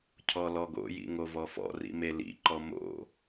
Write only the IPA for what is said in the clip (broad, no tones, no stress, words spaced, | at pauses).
cʰɔlɔɡo̰jḭ ŋovɔfɔ̰rḭ melḭǃɔ mo̰